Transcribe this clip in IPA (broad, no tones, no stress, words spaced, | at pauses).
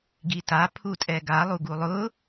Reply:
ɡita pʰutʼɛɡa lˠuɡulˠʊ